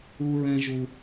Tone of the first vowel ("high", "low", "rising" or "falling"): high